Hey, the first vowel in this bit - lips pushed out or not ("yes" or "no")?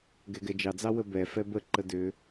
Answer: no